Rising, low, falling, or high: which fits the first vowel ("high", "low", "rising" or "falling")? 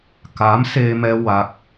rising